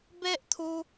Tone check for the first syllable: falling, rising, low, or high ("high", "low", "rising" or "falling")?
high